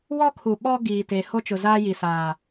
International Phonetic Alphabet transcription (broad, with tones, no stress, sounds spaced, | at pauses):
w ɔ˦ kʰ u˨ ɓ ɔ˦ ɡ iː˨ t e˨ h o˦ t͡ʃ ʊ˨ z aː˦ j i˨ s aː˨